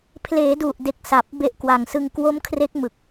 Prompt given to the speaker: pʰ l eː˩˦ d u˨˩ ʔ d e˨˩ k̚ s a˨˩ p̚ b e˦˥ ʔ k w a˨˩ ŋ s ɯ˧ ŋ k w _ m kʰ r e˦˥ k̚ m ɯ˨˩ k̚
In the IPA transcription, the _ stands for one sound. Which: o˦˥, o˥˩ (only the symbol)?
o˦˥